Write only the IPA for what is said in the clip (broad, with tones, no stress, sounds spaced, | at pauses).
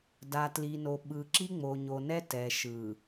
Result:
d a˨ t l i˨ n o˨ ɓ ɯ˨ ǁ i˦ ŋ͡m o˨ ɲ o˨ n ɛ˦ t ɛ˨ ʃ ɯ˨